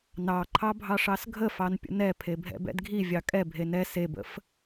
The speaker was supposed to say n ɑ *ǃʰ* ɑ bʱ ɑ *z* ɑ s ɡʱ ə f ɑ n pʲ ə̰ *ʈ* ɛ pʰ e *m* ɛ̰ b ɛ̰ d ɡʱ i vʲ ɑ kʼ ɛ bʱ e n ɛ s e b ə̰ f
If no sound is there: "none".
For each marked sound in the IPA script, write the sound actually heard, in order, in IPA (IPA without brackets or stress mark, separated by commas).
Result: ǃʰ, ʂ, n, bʱ